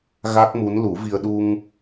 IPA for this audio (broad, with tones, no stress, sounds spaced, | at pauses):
ɣ a˦˥ k̚ m u˧˥ n l u˨˩˦ v i˧ ə̯ ɗ u˧ ŋ